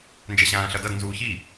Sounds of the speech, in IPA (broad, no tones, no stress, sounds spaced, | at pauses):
n d͡ʒ ɛ ɕ ãː ɬ ʌ d ʌ d n z uː ç i